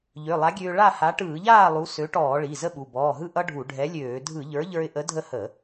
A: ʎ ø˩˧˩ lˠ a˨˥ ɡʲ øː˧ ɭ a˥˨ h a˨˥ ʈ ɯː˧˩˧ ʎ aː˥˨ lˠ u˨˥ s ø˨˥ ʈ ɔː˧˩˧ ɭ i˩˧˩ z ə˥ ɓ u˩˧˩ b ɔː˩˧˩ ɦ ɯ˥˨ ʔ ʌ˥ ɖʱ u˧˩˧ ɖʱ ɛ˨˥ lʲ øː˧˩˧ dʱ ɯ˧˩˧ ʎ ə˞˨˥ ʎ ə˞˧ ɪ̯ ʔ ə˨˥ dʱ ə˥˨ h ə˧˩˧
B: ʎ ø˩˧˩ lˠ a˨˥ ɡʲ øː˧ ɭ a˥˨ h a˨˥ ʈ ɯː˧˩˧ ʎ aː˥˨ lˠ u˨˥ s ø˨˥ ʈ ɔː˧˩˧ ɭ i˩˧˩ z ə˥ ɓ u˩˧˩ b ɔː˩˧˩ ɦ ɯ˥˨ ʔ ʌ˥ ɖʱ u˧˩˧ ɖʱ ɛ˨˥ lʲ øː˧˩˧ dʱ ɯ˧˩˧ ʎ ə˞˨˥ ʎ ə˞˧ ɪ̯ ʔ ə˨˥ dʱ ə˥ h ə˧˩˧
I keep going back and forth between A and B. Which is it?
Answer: A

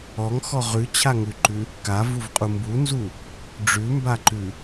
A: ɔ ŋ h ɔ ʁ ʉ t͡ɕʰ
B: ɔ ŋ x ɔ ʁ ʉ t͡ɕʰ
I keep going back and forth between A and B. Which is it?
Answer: B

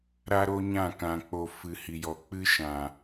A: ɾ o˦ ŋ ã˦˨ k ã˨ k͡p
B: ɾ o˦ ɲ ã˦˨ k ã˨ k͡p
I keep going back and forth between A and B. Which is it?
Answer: B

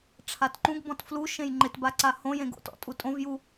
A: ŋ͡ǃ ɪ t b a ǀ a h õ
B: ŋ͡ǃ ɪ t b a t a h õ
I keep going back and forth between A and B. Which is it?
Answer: A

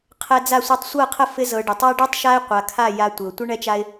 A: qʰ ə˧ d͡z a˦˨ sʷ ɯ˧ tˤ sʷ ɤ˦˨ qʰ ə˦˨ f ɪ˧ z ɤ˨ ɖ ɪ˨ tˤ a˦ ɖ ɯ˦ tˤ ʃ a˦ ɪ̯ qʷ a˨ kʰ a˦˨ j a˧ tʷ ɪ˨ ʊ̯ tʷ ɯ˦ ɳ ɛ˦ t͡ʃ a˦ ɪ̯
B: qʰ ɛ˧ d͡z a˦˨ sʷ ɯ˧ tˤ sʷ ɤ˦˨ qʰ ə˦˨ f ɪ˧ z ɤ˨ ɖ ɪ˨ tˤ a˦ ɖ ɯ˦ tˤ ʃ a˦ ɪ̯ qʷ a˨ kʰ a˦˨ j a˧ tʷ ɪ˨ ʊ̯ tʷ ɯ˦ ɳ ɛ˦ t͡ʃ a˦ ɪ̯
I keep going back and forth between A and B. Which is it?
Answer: B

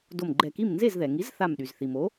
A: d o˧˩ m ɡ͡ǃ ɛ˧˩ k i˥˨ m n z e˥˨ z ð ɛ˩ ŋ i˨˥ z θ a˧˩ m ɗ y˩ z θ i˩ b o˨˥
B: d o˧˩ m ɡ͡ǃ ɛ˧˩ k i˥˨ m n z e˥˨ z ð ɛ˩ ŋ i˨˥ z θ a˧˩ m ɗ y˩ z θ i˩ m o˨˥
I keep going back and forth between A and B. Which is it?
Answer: B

